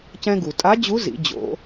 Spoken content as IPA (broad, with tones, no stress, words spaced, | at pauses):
cɛ̃˧ɡu˩tʼa˧˥d͡ʑu˧˥ zḭ˩˧d͡ʑo̰˩˧